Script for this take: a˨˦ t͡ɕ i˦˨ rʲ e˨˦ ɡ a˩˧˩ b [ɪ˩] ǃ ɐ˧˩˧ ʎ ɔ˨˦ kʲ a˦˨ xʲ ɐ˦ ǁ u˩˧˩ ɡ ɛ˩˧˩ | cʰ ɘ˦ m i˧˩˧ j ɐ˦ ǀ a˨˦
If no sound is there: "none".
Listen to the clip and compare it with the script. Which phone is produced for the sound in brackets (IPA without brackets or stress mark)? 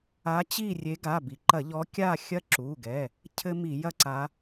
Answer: i˩